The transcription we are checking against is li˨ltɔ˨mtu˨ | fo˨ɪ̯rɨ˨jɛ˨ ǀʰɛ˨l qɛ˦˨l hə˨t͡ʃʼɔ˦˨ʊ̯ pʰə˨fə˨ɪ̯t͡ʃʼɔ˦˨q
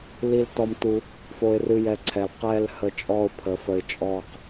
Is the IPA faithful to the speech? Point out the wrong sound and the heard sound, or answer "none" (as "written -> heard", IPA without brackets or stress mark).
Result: none